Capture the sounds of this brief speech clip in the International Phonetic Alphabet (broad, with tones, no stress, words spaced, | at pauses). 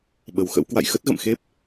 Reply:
ɓə˨˩wxə̰˧˥w kwa̰˧˨jxə˦˥t̚ɣə̰˧˨mxe˦˥p̚